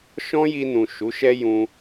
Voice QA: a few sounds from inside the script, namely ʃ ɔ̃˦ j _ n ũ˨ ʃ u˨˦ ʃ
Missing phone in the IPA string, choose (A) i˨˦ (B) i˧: B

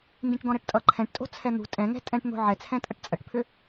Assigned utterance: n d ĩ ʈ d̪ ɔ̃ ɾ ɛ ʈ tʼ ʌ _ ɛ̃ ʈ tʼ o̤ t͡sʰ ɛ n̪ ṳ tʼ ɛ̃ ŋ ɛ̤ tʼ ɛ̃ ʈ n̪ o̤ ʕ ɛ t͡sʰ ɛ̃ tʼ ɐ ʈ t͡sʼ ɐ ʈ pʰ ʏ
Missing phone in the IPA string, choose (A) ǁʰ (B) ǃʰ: B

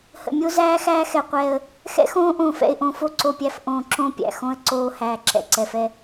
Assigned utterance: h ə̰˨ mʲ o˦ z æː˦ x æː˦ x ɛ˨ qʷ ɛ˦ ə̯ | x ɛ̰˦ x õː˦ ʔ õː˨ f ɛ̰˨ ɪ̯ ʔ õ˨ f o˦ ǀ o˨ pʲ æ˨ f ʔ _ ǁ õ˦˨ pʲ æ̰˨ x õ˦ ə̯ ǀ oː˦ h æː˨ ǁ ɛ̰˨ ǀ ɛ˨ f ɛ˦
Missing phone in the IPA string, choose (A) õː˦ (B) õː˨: B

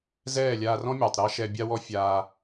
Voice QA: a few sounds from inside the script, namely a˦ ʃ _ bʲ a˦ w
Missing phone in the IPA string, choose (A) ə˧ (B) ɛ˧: B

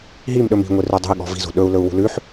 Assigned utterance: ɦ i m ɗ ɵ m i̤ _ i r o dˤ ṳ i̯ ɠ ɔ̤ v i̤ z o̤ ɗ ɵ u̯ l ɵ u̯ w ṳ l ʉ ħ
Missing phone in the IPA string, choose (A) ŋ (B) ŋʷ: B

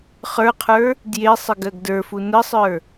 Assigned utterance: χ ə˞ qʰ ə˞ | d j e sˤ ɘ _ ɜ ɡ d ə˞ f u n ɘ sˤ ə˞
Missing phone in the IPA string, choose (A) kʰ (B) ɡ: B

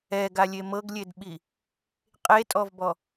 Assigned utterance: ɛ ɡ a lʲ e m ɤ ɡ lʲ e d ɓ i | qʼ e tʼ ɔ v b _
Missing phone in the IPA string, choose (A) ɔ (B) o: A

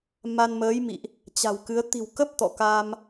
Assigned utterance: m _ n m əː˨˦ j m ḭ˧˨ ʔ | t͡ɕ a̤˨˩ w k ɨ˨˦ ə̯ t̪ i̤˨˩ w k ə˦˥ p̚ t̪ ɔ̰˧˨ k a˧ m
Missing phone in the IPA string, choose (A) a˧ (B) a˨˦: A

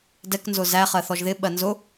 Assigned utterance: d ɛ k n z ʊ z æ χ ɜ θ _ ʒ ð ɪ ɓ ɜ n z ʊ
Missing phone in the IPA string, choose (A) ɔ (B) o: A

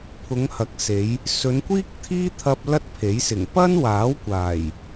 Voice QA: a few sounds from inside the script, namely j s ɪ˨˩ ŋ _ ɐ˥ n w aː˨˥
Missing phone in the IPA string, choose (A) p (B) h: A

